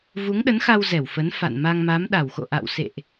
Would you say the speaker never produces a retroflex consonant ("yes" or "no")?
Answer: yes